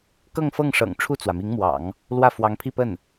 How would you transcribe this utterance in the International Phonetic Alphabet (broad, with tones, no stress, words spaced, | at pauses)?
kɤ˥˧ŋfɤ˥˩ŋ ʂɤ̰˨˩ŋ ʈ͡ʂʰu˥˩t͡swä˩mi˧˥ŋmwɑ̰˨˩˦ŋ | lwä˥˩fwɑ˧˥ŋpʰi˥˧pə˥˩n